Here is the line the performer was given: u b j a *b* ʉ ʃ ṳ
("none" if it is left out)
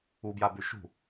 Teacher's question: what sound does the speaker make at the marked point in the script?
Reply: b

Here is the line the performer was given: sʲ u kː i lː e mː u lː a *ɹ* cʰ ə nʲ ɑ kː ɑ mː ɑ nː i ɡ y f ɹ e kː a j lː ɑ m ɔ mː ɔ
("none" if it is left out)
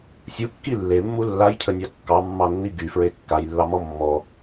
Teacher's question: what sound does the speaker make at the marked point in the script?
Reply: j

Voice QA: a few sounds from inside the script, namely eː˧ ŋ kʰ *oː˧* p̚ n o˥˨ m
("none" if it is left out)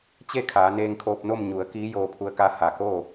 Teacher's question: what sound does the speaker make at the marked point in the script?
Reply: oː˧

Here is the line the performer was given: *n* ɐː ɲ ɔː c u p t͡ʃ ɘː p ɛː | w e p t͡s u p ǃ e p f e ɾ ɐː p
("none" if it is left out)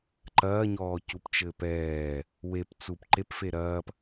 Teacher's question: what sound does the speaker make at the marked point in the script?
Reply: ǃ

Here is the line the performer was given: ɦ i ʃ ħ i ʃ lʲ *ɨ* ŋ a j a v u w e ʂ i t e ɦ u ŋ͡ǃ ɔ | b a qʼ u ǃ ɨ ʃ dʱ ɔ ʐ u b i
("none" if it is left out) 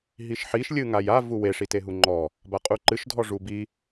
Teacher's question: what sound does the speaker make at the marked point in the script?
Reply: ɨ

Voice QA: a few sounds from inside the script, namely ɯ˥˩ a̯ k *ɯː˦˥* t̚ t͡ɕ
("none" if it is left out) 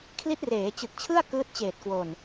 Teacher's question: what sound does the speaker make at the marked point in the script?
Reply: ɯː˦˥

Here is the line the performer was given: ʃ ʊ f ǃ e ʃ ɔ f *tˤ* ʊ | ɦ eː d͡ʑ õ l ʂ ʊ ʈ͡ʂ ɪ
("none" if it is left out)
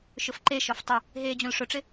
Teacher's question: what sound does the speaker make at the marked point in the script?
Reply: tˤ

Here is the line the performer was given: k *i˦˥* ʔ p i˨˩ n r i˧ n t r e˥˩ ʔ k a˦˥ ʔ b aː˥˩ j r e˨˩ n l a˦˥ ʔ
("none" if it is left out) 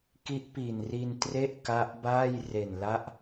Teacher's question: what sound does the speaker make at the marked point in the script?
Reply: i˦˥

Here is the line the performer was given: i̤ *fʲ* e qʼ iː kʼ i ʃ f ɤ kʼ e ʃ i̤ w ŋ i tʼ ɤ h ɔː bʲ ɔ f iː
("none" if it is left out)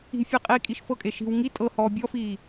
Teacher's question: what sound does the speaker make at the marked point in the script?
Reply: fʲ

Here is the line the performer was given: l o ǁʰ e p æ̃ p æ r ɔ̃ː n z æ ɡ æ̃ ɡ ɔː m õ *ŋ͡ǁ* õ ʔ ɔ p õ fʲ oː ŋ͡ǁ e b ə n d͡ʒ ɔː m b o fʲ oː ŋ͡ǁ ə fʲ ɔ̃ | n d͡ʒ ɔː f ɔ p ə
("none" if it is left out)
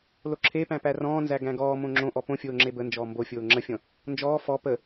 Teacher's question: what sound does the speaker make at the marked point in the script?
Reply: ŋ͡ǁ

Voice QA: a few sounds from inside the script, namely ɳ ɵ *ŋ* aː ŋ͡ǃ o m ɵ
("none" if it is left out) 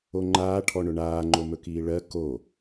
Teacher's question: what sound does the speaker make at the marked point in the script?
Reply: ɳ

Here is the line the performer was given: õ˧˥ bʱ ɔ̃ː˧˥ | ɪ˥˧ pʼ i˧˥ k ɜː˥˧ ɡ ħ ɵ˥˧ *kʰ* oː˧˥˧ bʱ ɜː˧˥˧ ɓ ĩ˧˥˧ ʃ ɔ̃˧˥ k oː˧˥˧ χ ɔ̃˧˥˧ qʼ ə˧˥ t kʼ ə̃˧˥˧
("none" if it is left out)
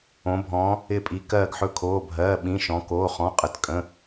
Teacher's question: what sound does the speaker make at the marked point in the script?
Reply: kʰ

